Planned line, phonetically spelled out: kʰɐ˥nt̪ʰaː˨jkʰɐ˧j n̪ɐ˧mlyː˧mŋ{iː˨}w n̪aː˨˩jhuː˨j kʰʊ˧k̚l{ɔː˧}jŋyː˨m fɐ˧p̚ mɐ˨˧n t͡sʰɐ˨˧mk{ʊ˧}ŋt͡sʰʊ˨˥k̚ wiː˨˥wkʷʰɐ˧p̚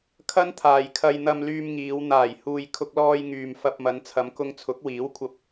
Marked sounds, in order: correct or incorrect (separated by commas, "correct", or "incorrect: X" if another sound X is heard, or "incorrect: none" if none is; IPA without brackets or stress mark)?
incorrect: iː˨˧, correct, correct